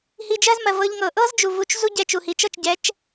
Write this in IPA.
hi˧d͡ʒɜ˥zmɜ˩ vɤ˧ʎŋɤ˩ ʔɤ˥z d͡ʒu˩vu˧t͡ʃ zu˥ ɟɛ˧t͡ʃu˩hi˩˥t͡ʃ ɤ˥˩t͡ʃ ɟɛ˩˥t͡ʃ

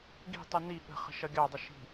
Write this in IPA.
ɡi̤tˤu ni ɠə̤χə̤ ʃʌɡʲɑdˤʊ ʃi̤

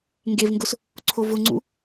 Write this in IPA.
ŋɡevŋɡʊs | ǀʰovʊŋ͡ǀṵ

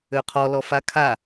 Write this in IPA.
øqʰɔlɔ fakʰa

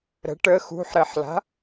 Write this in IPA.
ɾə̤ ʈə xṳħɾeħla̤

